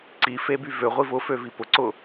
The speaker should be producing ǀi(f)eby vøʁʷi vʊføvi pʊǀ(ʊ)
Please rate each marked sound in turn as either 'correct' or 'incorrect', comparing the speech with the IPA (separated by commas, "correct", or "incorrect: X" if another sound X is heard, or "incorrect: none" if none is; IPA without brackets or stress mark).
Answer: correct, correct